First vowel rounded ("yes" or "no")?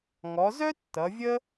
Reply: yes